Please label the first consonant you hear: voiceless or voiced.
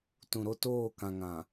voiceless